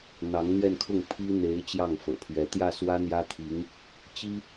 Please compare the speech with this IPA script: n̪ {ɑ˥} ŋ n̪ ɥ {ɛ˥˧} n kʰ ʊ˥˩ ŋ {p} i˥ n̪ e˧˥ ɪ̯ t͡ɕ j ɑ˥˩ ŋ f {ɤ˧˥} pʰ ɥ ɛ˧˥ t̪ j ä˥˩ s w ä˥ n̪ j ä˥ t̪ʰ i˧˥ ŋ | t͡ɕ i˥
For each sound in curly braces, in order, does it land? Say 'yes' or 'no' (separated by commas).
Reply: no, yes, no, no